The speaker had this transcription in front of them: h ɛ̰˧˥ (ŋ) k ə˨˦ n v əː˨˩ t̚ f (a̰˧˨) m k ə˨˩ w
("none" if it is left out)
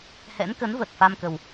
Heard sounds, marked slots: n, a˧

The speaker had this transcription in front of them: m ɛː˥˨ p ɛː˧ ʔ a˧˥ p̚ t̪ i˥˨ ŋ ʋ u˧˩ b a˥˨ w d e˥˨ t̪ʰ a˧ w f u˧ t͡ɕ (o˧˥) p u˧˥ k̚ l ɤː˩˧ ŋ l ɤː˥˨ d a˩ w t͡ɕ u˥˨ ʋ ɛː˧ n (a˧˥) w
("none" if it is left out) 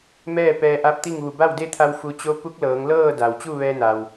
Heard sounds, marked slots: o˧˥, a˩

